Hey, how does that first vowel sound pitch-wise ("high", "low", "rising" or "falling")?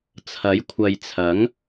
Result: rising